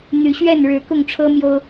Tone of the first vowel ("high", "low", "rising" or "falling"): rising